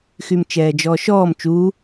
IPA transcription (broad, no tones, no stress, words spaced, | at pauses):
xymt͡ʃɛːd͡ʒɔːʃɔːm t͡ʃu